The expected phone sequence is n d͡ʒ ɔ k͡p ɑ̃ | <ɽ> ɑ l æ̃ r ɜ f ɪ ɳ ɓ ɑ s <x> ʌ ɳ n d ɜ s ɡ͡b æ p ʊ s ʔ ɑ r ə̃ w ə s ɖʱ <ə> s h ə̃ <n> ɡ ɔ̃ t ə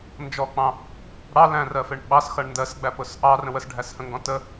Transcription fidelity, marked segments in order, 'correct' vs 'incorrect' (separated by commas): correct, correct, incorrect, incorrect